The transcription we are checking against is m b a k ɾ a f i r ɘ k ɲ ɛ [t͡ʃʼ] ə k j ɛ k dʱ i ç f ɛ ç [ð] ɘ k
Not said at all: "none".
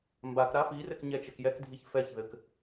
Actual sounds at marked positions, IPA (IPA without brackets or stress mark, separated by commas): t͡ʃ, ð